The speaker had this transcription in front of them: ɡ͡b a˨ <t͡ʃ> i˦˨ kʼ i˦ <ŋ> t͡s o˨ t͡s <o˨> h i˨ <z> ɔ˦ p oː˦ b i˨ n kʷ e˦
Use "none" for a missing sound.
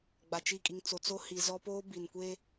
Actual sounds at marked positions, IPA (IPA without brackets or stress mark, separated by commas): t͡ʃ, ŋ, o˦, z